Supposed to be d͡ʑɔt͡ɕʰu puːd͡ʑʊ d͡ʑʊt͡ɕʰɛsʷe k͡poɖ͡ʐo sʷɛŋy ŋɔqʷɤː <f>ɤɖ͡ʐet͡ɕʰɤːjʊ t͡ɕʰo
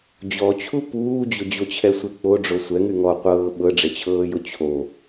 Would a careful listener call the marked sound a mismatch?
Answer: yes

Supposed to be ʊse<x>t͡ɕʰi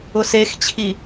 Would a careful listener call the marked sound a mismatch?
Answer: no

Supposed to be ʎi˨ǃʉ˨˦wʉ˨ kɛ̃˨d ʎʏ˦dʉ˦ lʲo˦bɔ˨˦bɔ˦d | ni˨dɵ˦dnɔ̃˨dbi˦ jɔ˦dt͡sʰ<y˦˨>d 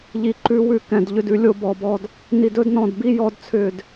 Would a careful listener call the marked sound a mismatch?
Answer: yes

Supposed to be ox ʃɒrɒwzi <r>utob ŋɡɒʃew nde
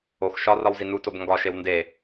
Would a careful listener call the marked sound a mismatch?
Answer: yes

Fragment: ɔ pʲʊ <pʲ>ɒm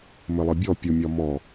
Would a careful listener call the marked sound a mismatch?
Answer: yes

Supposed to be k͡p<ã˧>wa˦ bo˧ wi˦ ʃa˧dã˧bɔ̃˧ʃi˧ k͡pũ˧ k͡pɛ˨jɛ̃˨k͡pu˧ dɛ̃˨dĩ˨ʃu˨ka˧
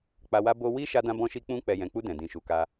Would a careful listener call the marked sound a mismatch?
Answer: yes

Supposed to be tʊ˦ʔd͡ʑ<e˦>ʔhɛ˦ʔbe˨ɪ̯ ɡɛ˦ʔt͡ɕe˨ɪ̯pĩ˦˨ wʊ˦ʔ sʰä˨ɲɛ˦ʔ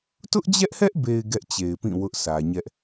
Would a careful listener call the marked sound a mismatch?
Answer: yes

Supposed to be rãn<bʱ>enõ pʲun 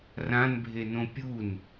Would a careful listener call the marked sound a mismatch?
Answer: no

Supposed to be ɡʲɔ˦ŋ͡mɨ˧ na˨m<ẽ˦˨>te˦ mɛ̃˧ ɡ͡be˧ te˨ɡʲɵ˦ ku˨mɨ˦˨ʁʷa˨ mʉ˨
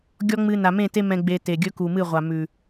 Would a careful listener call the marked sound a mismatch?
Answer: no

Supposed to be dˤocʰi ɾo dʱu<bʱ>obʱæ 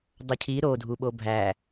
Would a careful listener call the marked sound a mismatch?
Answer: yes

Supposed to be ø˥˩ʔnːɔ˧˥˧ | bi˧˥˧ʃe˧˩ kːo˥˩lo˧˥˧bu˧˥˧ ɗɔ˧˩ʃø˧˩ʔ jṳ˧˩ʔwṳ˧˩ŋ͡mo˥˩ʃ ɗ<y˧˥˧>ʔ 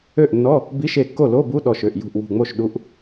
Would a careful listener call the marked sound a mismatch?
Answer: yes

